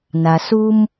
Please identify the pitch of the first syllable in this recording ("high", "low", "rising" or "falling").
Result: low